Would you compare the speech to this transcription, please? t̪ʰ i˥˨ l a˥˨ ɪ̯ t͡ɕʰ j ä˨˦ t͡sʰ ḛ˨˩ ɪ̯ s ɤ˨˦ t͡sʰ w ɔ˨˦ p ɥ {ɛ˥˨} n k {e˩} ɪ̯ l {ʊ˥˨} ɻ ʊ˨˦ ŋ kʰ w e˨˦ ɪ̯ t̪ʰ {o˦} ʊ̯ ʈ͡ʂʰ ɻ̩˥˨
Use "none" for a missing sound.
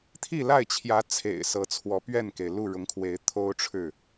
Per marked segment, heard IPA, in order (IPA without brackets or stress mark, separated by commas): ɛ˥˨, e˩, u˥˨, o˦